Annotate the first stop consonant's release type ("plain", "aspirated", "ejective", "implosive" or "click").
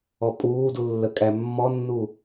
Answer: ejective